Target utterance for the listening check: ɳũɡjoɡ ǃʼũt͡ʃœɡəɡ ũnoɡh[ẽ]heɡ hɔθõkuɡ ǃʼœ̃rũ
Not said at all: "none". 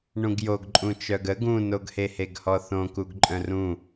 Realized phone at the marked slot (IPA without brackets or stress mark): e